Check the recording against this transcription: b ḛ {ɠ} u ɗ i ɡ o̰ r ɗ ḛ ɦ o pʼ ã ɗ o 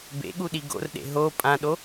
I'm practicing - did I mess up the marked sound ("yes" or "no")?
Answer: no